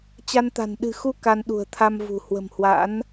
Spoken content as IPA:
t͡ɕa˧nt̪a̤˨˩n ɗɨ̤˨˩xu˧ ka˧nɗṳ˨˩ə̯t̪ʰa˧mvṳ˨˩ hwə̤˨˩mhwa̰˧˥n

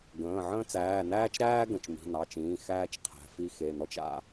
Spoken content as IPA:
ɡə̃ː˩˧˩ʕə̃ː˥ t͡sæː˩˧˩næː˥t͡ʃɾæː˥ ɡə̃˩˧˩t͡ʃmi̤˩˧˩nɑ˩˧˩t͡ʃĩː˩˧˩ xæː˥t͡ʃqʰæ̤˩˧˩ fi˥ xe˩˧˩nɔ˥t͡ʃ a̰˥

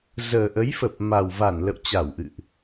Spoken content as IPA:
zəː˨˩ʔə˨˦jfə˨˩p̚ ma˨˩wva˧˩n lə̰˧˨wt͡ɕa˧˩wʔɨ̰˧˨ʔ

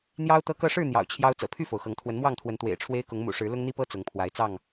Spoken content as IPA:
n̪jɑ˦ʊ̯ t̪ɤ˦kɤ˥˨ ʂɻ̩˥˨ n̪jɑ̰˨˩ʊ̯t͡ɕʰjɑ˦ʊ̯ t͡sɤ̰˨˩pʰy˥˨fo˩ʊ̯xɤ˨˦ŋ t̪ʰwə˨˦nmwɑ˥˨ŋt̪ʰwə˨˦n t̪wḛ˨˩ɪ̯ʈ͡ʂʰwe˦ɪ̯kʊ˨˦ŋ mṵ˨˩ʂɻ̩˨˦ lʊ˦ŋn̪i˦pɤ˦ t͡sʊ˨˦ŋpʰwa˨˦ɪ̯t͡sɑ˥˨ŋ

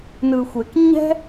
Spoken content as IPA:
nɯ˨xʷe˨k ɲɛ̤˦

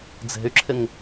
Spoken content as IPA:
d͡ze̤y̯ǁʰɪŋ

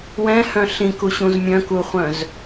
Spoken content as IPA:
wɛ̃hœ̃ ɬĩkuɕũz mʲœ̃kuχʷœ̃z

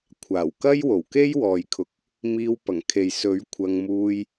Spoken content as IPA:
kʷʰaː˨˩wkɐ˥jwo˨˩wke˥j wɔː˨jkʰʊ˨k̚ | miː˧wpɐ˨˩ŋ kʰe˨jsɵ˨˥ɥ kʷʰɐ˧ŋ muː˧j

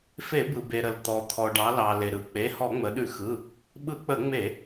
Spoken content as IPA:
fe˧˩˧bɯ˩ be˩ ɾə˩lt̪ɔ˩ t̪ʰɔ˩ɖɑ˩˧lɑ˩ le˩ɾɯ˩˧k͡pe˩˧˩ hɔ˧˩˧ŋ͡mə˩˧ɗʉ˧˩˧xɯ˩˧˩ | ɓɯ˧˩˧k͡pə˧˩˧ŋ͡me˧˩˧

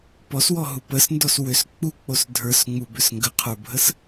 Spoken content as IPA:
pɔswɔɦu pəsndɔs wʏs k͡puk͡pos dʱə˞sŋ͡mubʏs ŋɡəqʰə˞bʱəs

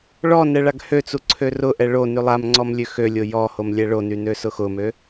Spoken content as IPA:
ɭɔnɛ ɭaɡhøt͡su ǀʰørʊʔɛ ɭo nylˠamŋ͡ǀɔm lʲøxølʲo jɔhom lʲɛɭony nøsʊxʊmø

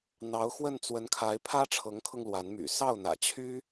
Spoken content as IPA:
n̪ɑ˧˥ʊ̯xwə˥˩n t͡swə˧˥nkʰa˧˥ɪ̯ pʰä˥ʈ͡ʂʰɤ˧˥ŋkʰɤ˧ŋ lwa˧˥nmy̰˨˩ sɑ˥˩ʊ̯n̪ä̰˨˩t͡ɕʰy˥

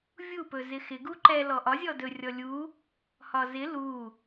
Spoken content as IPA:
vʲupɵ zɪxɪ ɡuǃɛ lɔʔɒzʲɔ dɵ rʲɔlʲu | hɒzɪ lu

